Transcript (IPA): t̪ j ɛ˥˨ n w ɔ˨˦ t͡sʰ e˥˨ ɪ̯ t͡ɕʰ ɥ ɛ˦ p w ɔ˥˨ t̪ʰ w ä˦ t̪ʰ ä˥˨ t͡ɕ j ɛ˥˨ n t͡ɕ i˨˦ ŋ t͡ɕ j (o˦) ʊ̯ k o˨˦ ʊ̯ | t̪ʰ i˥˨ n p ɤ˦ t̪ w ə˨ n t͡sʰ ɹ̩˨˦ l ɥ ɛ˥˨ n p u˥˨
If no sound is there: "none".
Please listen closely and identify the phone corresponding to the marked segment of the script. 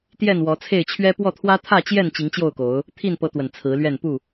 o˥˨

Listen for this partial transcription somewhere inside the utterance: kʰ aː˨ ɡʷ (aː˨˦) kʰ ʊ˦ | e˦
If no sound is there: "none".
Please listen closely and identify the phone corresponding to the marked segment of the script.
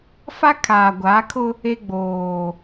aː˨˦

